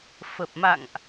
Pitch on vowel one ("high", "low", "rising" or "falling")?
low